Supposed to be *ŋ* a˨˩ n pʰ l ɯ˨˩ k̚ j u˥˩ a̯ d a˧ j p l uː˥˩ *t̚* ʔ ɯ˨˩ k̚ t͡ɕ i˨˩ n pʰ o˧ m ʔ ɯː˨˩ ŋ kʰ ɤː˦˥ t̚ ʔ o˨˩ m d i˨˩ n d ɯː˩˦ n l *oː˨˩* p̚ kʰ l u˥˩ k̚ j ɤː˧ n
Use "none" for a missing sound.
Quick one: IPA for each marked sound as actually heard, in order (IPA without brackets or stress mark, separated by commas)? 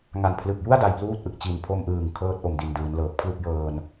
ŋ, t̚, ɤː˨˩